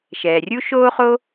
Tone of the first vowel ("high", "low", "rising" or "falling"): low